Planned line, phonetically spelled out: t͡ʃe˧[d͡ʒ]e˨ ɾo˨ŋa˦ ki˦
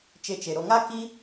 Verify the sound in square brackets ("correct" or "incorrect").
incorrect